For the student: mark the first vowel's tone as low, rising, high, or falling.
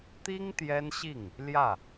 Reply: high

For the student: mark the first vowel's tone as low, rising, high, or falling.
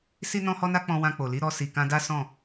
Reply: high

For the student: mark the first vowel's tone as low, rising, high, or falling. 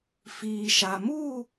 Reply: low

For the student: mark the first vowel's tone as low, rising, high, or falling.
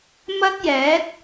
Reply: high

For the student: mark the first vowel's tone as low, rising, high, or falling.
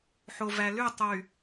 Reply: low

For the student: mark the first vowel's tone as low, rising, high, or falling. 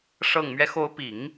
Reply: low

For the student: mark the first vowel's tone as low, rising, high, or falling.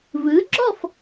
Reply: rising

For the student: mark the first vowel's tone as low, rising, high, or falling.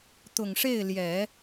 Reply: low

